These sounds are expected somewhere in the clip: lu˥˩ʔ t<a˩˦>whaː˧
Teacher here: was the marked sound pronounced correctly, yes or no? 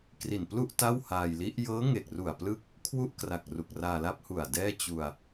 no